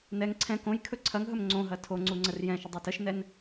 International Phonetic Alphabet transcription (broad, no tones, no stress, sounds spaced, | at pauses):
n ɛ ŋ ǀʰ ɛ̃ k õ j kʰ ɵ ǀʰ ɐ ŋ ɦ ɵ m ŋ͡ǀ õ ɦ ɐ tʰ o ŋ͡ǀ u ŋ͡ǀ ə r j ɛ̃ ʃ ə dˤ ɵ t ə ʃ n ɛ n